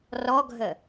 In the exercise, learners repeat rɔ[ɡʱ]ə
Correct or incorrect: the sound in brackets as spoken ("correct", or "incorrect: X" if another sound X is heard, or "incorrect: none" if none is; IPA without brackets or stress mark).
correct